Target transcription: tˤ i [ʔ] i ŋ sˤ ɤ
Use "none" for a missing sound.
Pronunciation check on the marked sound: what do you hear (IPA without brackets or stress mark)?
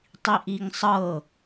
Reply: ʔ